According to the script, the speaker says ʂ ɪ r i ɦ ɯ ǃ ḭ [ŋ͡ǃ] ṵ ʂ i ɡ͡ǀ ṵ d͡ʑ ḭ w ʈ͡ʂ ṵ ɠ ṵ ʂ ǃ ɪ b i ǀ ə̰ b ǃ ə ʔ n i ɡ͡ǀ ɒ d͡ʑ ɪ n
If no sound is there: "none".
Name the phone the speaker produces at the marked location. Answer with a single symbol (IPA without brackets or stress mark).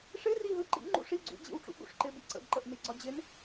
ŋ͡ǃ